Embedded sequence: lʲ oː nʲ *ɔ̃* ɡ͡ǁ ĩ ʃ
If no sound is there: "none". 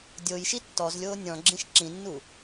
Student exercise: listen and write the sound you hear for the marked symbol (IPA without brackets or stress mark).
ɔ̃